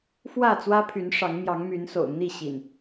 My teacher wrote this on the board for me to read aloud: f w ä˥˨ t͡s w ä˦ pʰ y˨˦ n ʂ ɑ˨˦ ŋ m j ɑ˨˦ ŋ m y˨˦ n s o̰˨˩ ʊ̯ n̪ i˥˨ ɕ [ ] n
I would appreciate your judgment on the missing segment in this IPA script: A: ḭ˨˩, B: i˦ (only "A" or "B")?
A